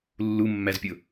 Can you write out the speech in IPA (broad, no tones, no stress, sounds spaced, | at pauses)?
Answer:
lː u mː æ z pʲ ʊ